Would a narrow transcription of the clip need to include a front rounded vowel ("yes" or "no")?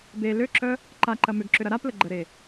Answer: yes